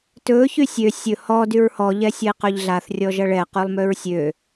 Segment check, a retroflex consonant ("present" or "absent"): present